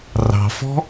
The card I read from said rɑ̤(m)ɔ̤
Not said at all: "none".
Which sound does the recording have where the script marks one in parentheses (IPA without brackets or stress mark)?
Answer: f